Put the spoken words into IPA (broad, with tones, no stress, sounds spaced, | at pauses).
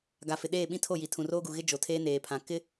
ɡ a˨ f ɪ˨ ɗ eː˦˨ ɓ ĩ˦ tʰ o˦˨ j i˨ tʰ ũ˨ r oː˦ ɡ u˨ ɣ ɪ˦ d͡ʒ o˨ tʰ eː˦ n eː˨ pʰ ã˨ k ɪ˦